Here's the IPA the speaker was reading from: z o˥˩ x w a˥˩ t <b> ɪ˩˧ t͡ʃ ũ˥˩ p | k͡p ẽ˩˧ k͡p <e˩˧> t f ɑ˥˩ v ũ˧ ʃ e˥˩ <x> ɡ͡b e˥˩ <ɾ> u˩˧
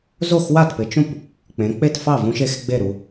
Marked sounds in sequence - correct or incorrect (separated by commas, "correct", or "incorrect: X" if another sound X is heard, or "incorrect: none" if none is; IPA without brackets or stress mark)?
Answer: incorrect: p, incorrect: e˥˩, correct, correct